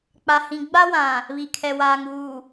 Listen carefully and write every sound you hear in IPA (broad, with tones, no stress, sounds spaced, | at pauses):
k͡p a˨ h ĩ˨ ɡ͡b a˦ w ã˨ | β i˨ kʰ ɛ˨ w aː˨ ŋ uː˨